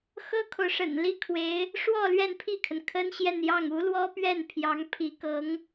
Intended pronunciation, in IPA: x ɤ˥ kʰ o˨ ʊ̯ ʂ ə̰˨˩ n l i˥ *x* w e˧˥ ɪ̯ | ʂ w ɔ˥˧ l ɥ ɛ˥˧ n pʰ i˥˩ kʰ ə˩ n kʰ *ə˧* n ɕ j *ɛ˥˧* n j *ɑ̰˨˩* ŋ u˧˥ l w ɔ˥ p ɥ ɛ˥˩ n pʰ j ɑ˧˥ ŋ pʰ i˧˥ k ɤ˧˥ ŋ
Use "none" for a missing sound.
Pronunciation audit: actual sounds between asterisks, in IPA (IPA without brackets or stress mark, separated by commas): kʰ, ə˥, ɛ˥˧, ɑ˥˩